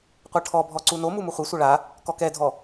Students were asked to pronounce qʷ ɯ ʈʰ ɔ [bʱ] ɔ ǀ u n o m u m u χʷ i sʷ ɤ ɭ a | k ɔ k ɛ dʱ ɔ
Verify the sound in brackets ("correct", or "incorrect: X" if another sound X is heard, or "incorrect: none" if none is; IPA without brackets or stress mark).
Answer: correct